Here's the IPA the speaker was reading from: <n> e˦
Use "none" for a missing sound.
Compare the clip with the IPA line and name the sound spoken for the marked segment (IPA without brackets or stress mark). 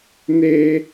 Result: n